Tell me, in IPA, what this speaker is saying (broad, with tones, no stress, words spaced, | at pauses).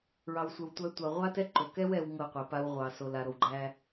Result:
ɹɑ˨wsʷɛ˨w tʷæ˦ tʷa˨ʁʷa˦tɛ˦ ǃo˨kɛ˦w ɛ˦wŋɤ˦˨qʷɛ˨pa˦w ʁʷɑ˨ so˨la˨ ɾo˨wɡ͡ǃæ˦